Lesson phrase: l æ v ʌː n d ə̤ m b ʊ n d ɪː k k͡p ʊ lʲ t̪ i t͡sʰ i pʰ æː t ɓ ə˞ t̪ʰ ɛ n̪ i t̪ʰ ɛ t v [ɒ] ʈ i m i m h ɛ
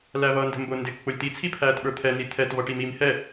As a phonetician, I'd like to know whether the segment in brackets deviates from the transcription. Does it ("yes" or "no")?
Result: yes